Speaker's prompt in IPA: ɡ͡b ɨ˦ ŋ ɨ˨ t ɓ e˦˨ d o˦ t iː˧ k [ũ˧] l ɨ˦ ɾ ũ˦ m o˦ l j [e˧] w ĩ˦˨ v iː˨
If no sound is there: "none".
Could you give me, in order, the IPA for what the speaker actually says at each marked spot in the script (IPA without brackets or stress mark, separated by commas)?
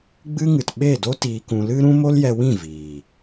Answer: ũ˧, ɛ˧